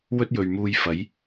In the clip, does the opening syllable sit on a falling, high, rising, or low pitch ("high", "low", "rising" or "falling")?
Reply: high